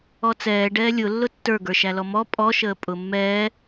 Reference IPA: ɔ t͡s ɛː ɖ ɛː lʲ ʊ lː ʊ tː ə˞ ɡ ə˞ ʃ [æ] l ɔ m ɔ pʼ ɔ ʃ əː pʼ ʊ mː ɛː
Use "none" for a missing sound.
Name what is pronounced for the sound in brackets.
æ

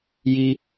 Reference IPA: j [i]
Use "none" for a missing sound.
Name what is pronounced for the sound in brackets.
i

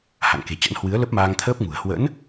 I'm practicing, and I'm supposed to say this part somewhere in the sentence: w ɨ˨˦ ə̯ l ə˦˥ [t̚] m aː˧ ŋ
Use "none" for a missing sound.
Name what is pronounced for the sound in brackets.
p̚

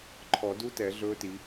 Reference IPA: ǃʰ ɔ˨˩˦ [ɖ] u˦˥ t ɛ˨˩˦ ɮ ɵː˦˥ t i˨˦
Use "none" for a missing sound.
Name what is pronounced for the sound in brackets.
d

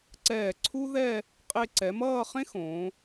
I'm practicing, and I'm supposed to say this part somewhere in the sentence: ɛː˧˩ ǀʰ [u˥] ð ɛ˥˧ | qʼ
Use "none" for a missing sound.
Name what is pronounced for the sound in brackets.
u˥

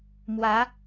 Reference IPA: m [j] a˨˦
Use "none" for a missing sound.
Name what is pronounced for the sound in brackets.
w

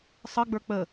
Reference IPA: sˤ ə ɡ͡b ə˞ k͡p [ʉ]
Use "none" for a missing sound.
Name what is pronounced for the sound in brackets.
ə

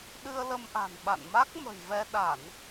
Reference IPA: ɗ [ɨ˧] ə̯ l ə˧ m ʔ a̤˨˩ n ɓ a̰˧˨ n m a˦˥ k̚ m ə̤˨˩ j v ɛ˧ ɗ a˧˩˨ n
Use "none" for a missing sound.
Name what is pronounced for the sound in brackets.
ɨ˧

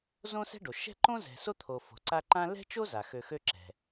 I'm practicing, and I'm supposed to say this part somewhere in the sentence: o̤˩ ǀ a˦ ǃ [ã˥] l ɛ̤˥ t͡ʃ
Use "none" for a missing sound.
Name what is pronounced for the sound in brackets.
ã˥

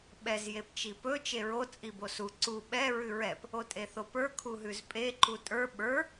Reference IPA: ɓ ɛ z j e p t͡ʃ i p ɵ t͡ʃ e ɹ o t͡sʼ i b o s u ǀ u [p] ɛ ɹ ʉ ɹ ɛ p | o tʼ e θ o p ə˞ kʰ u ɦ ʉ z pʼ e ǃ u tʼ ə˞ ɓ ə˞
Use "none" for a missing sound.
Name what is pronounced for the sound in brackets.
ɓ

